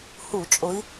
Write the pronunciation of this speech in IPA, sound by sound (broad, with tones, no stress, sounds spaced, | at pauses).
h u˧˩˧ t͡ʃʼ ʊ˨˦ i̯